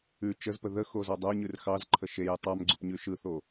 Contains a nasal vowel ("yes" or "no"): no